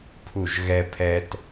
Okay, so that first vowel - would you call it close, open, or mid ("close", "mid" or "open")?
close